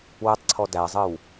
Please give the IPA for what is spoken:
wetˤǀʰɔ dæzˤɨw

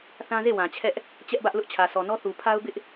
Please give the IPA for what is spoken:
θã˦ze˦˨ wã˨t͡ɕʰɛ˦ʔ | t͡ɕɛ˦ʔbä˦ʔ lʊ˦ʔt͡ɕʰä˨sʰɔ˨nɔ˦ θu˨pʰa˦ʊ̯bɪ˦ʔ

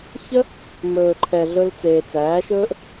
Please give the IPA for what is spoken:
çə˦ | mɵː˨ǃʰɛ˨ ɮɵ˧lt͡seː˨t͡sæː˨˦ ʃɵː˦ʔ

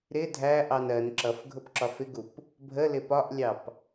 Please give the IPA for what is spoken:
ɾɪ dʱæʔɑn ɜn ǁʌfɡʱʊp ǁɒfɪɡup | bʱəlɪ pɒʔlʲɑp

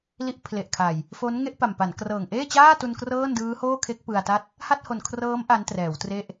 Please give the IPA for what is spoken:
li˦˥ʔpʰle˨˩ʔkʰa˨˩j | fo˦˥n ŋe˥˩ʔpa˨˩mpa˩˦n krɤː˨˩ŋʔeː˥˩t͡ɕaː˥˩tu˧n krɤː˥˩ndɯː˦˥hoː˥˩kʰe˦˥k̚ pɯ˧a̯ta˥˩t̚ | ha˥˩t̚ho˨˩n kʰrɤː˦˥m ʔa˦˥ntrɛː˩˦wtre˥˩ʔ

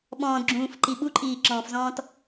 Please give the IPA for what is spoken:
ɓɔ̃ːdɡ͡ǁũːfǃi ɓuǃʼiːǁɔ̃ːfzɔ̃ːt

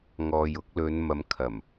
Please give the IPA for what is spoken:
ŋɔː˨j ʊ˧k̚lɵ˨˧n mɐ˨˧mkʰɐ˨˩m

